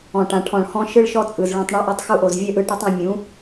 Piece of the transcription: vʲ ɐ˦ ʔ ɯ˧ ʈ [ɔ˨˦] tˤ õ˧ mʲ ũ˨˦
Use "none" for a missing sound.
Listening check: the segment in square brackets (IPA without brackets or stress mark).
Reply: ɔ˦